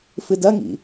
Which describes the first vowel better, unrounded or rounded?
unrounded